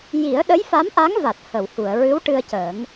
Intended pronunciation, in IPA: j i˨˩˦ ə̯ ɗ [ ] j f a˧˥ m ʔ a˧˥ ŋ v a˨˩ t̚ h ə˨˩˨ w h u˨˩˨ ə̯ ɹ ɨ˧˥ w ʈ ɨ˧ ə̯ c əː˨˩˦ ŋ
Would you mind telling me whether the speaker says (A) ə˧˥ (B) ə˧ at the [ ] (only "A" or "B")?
A